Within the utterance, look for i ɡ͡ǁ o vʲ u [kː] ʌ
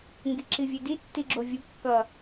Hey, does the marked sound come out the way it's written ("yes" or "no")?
yes